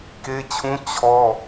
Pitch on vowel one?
high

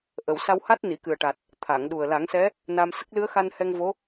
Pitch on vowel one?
low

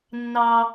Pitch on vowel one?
low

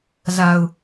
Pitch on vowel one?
low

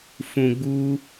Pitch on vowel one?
low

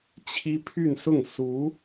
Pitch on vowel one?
high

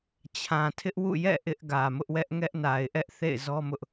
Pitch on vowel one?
low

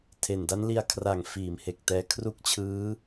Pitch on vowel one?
low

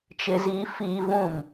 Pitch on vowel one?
high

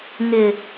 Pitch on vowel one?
low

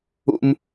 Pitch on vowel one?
high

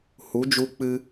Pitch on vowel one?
rising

